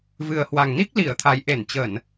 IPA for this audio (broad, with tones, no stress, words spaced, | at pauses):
vɨ˨˩ə̯hwa˨˩ŋni˦˥k̚ li˧˩ə̯t̪ʰa˨˩jʔe˧˩nt͡ɕə˧˩˨n